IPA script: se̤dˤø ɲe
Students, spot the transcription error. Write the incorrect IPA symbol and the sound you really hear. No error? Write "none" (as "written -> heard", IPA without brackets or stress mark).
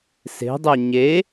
none